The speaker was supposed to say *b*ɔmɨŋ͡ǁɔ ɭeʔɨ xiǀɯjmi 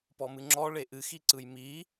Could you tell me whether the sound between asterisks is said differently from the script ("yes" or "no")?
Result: yes